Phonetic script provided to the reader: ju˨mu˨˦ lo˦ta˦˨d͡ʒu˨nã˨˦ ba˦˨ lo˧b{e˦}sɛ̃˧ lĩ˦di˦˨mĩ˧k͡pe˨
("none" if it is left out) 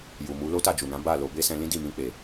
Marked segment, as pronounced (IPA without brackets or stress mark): e˦